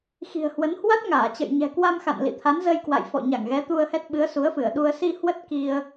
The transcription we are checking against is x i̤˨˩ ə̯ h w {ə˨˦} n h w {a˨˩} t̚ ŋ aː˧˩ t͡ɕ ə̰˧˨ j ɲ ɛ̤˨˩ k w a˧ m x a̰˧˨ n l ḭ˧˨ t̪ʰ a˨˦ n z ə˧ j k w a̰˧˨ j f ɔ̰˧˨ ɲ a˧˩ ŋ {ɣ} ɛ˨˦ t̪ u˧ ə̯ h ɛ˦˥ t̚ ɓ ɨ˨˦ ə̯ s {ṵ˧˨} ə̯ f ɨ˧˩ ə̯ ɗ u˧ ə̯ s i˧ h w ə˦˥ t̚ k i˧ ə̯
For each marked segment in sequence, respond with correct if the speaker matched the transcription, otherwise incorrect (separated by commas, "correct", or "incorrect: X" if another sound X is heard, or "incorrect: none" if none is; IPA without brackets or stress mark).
correct, incorrect: a˦˥, correct, incorrect: u˨˦